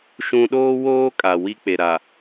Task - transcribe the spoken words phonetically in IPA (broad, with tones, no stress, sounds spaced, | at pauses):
ʃ ũ˨ ɗ oː˦ w oː˦ kʼ a˨ w i˦ k͡p e˨ ɾ a˨